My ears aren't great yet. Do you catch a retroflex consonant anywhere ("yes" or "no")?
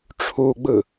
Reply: yes